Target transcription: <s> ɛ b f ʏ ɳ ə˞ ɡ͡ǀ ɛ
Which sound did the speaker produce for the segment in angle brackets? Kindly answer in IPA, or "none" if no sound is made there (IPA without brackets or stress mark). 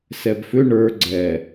s